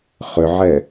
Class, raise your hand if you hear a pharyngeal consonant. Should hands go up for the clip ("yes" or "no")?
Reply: yes